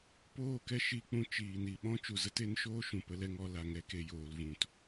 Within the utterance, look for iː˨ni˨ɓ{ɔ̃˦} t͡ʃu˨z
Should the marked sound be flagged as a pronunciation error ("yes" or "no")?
no